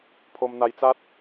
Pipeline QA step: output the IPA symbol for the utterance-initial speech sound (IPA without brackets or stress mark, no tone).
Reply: pʰ